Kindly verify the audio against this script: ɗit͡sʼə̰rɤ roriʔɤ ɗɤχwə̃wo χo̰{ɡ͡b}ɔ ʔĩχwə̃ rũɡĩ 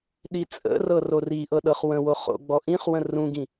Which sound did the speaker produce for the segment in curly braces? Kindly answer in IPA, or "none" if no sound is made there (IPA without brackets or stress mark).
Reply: ɡ͡b